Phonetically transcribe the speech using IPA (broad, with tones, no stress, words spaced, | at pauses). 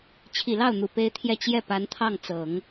t͡ɕʰi˨˩lɑ˥˩ʊ̯n̪u˨˩ pe˥ɪ̯t̪ʰjɛ˥˧ t͡ɕjɛ˥˩pa˧˥n t̪ʰɑ˥˩ŋt͡sɤ˨˩˦ŋ